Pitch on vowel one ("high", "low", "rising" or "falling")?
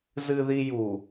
low